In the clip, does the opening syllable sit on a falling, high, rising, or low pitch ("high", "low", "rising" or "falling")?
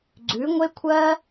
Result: rising